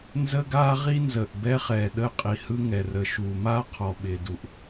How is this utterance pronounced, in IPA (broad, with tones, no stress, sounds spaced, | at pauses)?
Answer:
n z ə˦ ɡ aː˦ ʁ i˦ n z əː˨ ʔ b ɛ˦ χ ɛː˨ ɗ əː˦ qʼ i˨ h ɯ˦ ŋ ɛ˨ r ə˨ ʃ uː˨ m aː˦ qʰ ɔ˨ ɓ ɪː˨ d u˨ ʔ